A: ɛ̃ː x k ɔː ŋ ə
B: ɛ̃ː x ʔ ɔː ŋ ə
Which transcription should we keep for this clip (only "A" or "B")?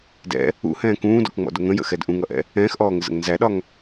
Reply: B